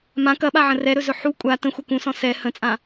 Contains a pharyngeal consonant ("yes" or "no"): yes